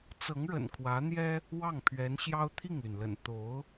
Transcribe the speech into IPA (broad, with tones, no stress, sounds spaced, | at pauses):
t͡s ɤ˧˥ ŋ ɻ ə̰˨˩ n kʰ w ä˧˥ n̪ j ɛ˥ | w ɑ˥˩ ŋ pʰ ɥ ɛ˧˥ n ɕ j ɑ˥ ʊ̯ t̪ʰ i˥˩ ŋ l y˩ n l ə̰˨˩ n t̪ o˧˥ ʊ̯